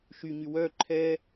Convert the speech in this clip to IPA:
ʃ y ɲ y w œ ǃʰ ɛ

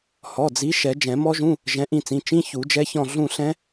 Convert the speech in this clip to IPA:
h ɔ˩˧˩ d͡z i˨˦ ʃ ɛ˨˩˦ d͡ʒ ɛ̃˨˩˦ m ɔ˦˥ ʒ ũ˧˥˧ | ʒ ɛ̃˨˦ ʔ ĩ˦˨ t͡s ĩ˩˧˩ t͡ʃ ĩ˧˥˧ ç u˨˩˦ d͡ʒ ɛ˦˥ ç ɔ̃˦˨ ɮ ũ˦˨ ɬ ɛ̃˦˥

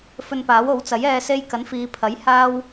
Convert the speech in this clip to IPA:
f ɵ˧ n p aː˨˥ w o˨˥ w t͡s ɐ˨˥ j ɛː˧ s e˧ j k ɐ˨˥ n f iː˨˧ pʰ ɐ˨˥ j h aː˥ w

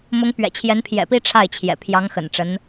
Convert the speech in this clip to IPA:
m ʊ˧˥ ŋ p ɥ ɛ̰˨˩ t͡ɕʰ j ɛ˧˥ n pʰ j ɛ̰˨˩ p i˥ ʈ͡ʂʰ a˥˩ ɪ̯ t͡ɕʰ j ɛ̰˨˩ pʰ j ɑ˧˥ ŋ x ə̰˨˩ n ʈ͡ʂ ə˧˥ n

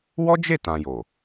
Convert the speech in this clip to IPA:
w ɔ˦ d͡ʒ e˦˨ t ã˨ j o˨

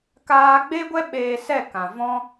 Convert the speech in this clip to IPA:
k aː˧ ɡ͡b e˦ ɡʷ ɛ˦ ɓ eː˧ s ɛ˦˨ k ã˨ v ɔ̃˦

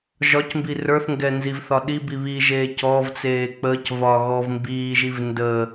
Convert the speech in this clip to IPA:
ʒ ɒ c m b i r ə˞ θ ŋ ɡ ɛ n z i v θ ɒ ɗ i b i β i ʒ eː c ɔ v t͡s eː k͡p əː c v ɒː ɣ ɔ v m b iː ʒ i v n d ə

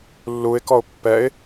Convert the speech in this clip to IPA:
lː u ɪ̯ k ɔ ʊ̯ pː ɛ ɪ̯

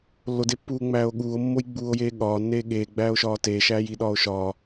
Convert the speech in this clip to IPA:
lː o d e pː uː ŋ͡m æː o̯ ɠ uː o̯ mː o j ɡ͡b uː o̯ j eː ɠ ɒː nː eː ɠ eː ɡ͡b æː o̯ ʃ ɒː t eː ʃ æː j i ɗ ɒː o̯ ʃ ɒː

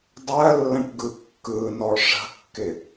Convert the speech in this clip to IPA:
dˤ ɜ lː ə̃ ʈ ɡ ɯ kː ɯ n ɔ ʂ ə̤ kː ɪ

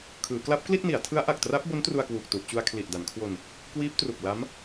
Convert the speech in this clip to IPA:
kʰ ɯː˩˦ k l a˦˥ p̚ k l i˥˩ t̚ n i˩˦ a̯ tʰ ɯ˦˥ a̯ ʔ a˨˩ k̚ t r a˦˥ p̚ b o˦˥ n t r u˧ a̯ k w uː˨˩ k̚ t u˨˩ ʔ t͡ɕ u˧ a̯ kʰ l i˨˩ ʔ d a˩˦ n kʰ w o˧ n | k w iː˦˥ p̚ t r u˨˩ k̚ l a˦˥ m

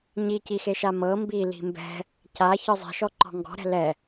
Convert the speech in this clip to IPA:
ɲ i c i x e ʃ a m ɤ m b i l i̤ m b ɛ̤ | c a ç ɯ zˤ i̤ ʃ ɔ ǃ ɔ̤ ŋ ɡ ɔ̤ ɾ ɛ̤ l ɛ

